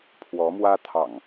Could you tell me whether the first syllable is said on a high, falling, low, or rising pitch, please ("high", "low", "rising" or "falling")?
rising